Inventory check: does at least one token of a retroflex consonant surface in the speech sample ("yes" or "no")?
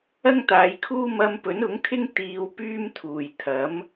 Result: no